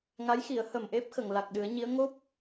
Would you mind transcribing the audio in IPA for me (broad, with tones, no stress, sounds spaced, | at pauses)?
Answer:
ŋ a˧˥ j x i˨˩˦ ə̯ h ə˨˩ m ʔ e˦˥ p̚ x ə˨˩˨ ŋ l a˨˩ k̚ ɗ ɨ˨˩˦ ə̯ ɲ i˧˥ ə̯ ŋ o˦˥ p̚